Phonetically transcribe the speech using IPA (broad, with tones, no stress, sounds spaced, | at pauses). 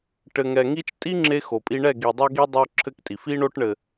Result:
ʈ ɘ˨ ŋ ɛ˨ ŋ i˦ t͡ʃ tʼ i˦ ŋ͡ǁ e˦ x o˨ pʼ i˦ ɳ ɛ˦˨ ɡ i˨ dˤ ɐ˦ ɡ i˦ dˤ o˦ ǁʰ ɘ˦ k tʼ i˨ f i˦ ɳ o˦ ʈ ɳ ɘ˨